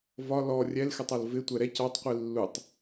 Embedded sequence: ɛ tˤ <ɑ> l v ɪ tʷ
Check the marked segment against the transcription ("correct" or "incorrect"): incorrect